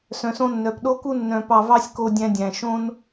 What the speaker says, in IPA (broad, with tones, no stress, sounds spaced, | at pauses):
s œ̃˨ s õ˧ nː œ˨ p ɗ o˦ k u˦ nː œ̃˧ p ɑ˧ v ɑ˦ sʲ k o˧ dʲ æ̃˧ dʲ æ̃˨ ʃ õ˦ n